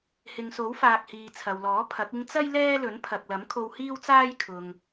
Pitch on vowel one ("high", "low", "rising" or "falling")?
low